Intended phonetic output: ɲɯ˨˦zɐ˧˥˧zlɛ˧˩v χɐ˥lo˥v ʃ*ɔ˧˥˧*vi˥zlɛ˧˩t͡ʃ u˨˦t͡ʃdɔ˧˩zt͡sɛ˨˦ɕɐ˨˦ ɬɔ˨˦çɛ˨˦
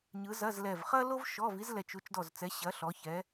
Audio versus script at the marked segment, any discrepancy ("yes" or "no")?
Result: no